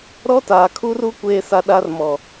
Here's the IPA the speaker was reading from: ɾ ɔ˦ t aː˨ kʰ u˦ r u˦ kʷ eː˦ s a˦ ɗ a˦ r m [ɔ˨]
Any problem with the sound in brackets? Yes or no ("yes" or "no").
no